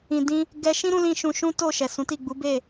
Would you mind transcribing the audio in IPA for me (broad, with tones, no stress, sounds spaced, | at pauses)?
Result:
ĩ˨ d ĩ˧ | ɡ ɛ˦ ʃ ĩ˦ ɾ ũ˧ l ĩ˦ ʃ ũ˧ ʃ ũ˦ t o˦˨ ʃ ɛ˨ s ũ˨˦ t i˦˨ ɡ͡b u˨˦ b e˦˨